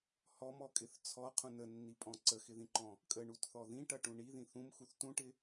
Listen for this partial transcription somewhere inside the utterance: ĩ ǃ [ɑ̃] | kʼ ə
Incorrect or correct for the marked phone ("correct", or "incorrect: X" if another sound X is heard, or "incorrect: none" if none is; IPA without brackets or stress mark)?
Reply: incorrect: ɔ̃